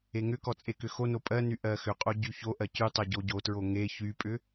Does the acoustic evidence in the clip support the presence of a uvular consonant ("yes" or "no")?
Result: yes